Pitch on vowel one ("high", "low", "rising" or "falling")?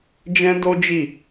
high